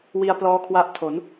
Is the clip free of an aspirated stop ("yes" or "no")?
no